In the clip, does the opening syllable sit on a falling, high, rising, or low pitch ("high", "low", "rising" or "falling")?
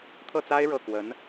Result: falling